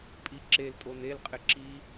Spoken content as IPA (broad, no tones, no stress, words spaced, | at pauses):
pʼi ǁeltʼon elqʼɪ ǁi